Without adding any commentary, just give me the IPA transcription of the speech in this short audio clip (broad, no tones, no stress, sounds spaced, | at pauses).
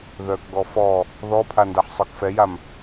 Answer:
ð œ k ɡ ɔ f ɔ | ð ɔ pʰ a n d a ħ sˤ œ k f ɛ j a m